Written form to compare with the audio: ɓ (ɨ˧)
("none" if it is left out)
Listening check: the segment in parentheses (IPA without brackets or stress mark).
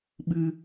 ɨ˧